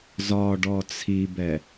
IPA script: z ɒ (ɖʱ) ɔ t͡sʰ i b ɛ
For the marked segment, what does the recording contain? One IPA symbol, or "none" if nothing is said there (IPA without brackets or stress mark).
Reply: ɖ